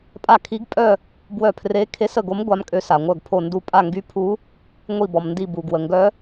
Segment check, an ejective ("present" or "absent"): present